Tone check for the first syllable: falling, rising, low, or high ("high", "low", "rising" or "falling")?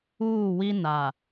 falling